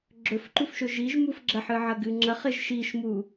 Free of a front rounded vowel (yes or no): yes